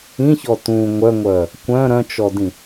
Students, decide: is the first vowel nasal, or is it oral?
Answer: nasal